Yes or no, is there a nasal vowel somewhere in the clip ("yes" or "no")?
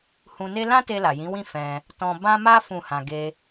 yes